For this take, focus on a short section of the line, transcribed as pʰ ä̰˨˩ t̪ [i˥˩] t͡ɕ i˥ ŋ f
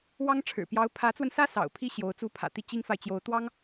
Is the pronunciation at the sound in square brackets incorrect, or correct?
correct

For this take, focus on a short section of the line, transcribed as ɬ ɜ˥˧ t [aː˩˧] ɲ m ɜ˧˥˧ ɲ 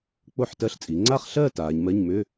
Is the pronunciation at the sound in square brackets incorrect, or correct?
correct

